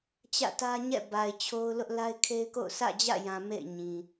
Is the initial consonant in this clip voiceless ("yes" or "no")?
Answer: yes